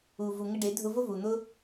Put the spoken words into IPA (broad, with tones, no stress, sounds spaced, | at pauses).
u˨ v u˨ ŋ ɪ˧ ɖ ɪ˨˦ dʱ ʊ˧ v ʊ˦ v u˨ n̪ ʊ˦